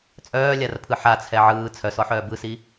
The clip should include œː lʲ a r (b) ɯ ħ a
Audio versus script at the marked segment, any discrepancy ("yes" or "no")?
yes